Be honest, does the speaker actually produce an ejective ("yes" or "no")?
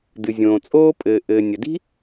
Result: yes